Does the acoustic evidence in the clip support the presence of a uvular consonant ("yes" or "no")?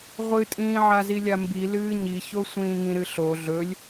yes